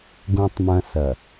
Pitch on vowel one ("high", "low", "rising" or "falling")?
low